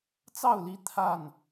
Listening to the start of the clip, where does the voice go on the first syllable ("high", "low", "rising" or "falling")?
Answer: falling